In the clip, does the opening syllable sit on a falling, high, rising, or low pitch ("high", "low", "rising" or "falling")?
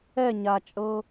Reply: falling